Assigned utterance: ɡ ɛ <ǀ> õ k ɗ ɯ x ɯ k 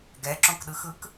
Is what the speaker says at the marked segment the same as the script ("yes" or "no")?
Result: no